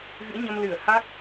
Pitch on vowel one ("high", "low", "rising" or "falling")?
rising